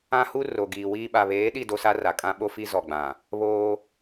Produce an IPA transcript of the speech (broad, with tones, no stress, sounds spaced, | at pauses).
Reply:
ã˦ h u˦ r o˨ ɡ iː˨ w iː˦ ɓ a˨ β eː˨˦ ɗ i˦˨ d o˦ s a˦ r a˨ kʼ ã˦ ɓ o˦ f i˦ z ɔ˨ ɡ͡b ã˨ | β oː˦